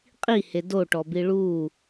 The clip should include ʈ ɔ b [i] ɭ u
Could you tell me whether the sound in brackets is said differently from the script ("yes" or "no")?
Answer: no